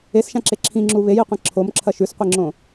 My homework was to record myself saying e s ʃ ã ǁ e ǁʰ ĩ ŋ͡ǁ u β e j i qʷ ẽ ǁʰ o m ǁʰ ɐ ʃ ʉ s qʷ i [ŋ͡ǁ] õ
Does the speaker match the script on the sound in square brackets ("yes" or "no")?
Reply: yes